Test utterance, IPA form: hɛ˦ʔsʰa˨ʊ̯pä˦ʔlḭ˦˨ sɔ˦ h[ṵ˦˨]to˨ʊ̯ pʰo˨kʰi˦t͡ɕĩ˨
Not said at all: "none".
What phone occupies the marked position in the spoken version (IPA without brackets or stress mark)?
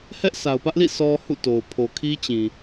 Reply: ṵ˦˨